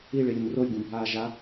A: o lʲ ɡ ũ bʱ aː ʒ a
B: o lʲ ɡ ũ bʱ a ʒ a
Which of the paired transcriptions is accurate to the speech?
A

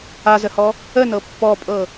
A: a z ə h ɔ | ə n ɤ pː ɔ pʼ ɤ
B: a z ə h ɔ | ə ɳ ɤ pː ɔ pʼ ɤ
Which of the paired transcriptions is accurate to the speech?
A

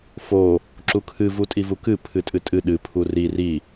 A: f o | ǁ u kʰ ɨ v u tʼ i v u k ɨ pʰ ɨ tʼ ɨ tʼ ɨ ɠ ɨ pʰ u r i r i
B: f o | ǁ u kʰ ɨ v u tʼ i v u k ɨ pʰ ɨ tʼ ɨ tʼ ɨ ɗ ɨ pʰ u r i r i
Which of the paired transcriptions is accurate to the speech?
B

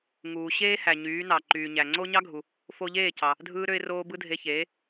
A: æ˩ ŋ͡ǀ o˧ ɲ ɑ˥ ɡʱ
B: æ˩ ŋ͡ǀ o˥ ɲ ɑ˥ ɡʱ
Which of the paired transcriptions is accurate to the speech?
B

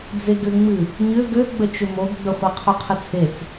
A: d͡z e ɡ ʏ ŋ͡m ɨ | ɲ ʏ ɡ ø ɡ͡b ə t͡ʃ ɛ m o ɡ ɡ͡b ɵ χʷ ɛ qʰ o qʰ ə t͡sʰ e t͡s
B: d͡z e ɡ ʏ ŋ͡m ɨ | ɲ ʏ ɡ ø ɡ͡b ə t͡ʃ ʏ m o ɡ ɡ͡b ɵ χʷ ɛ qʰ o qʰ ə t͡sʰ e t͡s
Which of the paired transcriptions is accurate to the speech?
B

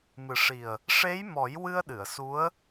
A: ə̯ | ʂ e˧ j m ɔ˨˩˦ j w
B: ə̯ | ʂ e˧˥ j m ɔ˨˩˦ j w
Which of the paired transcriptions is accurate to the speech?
B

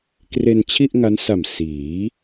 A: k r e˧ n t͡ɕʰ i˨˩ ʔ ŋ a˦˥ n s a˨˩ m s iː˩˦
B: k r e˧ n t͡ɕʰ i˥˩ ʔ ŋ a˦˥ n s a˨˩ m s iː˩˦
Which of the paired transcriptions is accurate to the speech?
B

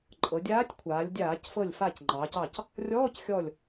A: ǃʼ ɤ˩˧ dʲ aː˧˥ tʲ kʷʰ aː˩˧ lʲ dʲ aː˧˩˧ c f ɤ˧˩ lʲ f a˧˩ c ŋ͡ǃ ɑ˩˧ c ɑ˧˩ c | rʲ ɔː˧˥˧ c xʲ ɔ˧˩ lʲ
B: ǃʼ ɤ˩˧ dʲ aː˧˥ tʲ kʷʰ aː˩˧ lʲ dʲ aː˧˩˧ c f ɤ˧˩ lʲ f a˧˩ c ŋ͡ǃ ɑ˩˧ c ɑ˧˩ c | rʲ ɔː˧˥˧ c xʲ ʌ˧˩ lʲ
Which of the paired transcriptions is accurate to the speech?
A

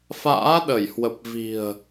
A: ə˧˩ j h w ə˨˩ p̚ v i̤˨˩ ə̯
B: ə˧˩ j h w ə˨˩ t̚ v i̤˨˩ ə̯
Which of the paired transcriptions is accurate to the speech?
A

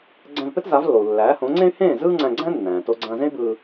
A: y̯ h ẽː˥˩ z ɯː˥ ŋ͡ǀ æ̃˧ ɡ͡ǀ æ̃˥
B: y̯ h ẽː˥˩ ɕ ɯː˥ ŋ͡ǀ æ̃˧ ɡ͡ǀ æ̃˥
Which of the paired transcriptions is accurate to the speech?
A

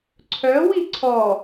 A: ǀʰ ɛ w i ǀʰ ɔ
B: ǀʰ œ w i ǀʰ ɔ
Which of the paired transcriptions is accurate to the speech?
B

